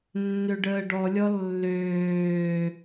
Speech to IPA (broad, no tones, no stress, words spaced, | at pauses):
nːøɖəːɖɔlʲɔ lːøː